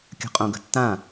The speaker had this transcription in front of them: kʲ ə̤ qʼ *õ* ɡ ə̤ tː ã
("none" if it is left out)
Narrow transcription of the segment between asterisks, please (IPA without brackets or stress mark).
õ